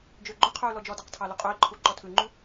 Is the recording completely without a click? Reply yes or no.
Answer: no